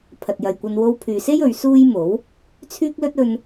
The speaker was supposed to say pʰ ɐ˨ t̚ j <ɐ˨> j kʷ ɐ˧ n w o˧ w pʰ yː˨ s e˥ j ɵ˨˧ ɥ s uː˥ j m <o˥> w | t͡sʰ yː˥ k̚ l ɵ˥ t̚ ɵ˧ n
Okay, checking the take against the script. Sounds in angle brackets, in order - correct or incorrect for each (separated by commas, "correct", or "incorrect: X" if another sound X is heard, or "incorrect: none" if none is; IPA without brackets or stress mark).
correct, incorrect: o˨˥